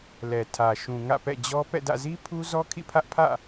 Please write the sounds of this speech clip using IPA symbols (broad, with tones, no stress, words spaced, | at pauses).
lɛ˨tʰä˨ʃũ˨ ŋä̰˦˨pɛ̰˦˨d͡ʑɔ˦ pɛ̰˦˨dä̰˦˨zi˦pʰu˦ zɔ˦kʰḭ˦˨pʰä˦ʔpʰä̰˦˨